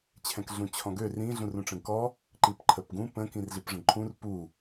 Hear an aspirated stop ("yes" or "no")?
yes